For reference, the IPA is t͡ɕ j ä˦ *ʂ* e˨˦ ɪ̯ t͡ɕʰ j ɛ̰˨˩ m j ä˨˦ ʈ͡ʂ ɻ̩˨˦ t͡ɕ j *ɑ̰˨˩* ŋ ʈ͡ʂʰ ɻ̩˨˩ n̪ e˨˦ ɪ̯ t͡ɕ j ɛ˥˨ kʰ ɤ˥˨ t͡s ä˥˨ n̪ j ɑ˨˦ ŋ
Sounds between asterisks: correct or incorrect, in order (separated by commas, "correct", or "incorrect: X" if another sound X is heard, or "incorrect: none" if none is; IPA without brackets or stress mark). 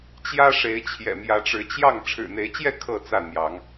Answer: correct, incorrect: ɑ˥˨